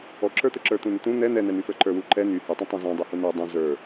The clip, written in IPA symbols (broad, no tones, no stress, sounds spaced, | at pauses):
ɔ ǁ ə˞ t̪ ə ǁ ə˞ t̪ ũ n ə t̪ ũ n̪ ɛ n̪ ɛ n̪ ɛ n̪ y f ə˞ ǃ ə˞ w u ǃ ɛ n y h y tˤ ũ tˤ ũ z ɔ̃ dˤ u h u n ə˞ dˤ ũ z ə˞